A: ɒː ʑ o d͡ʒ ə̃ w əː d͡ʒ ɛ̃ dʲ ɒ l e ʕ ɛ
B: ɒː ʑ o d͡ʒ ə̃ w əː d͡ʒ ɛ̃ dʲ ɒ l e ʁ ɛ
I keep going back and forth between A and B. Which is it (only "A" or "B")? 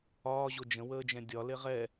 B